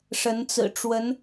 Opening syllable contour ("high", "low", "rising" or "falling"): rising